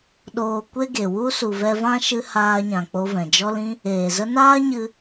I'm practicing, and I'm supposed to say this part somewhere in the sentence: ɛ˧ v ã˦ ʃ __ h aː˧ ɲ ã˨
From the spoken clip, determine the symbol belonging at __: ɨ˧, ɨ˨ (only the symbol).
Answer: ɨ˧